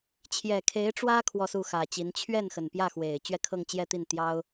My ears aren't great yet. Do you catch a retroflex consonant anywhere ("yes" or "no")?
yes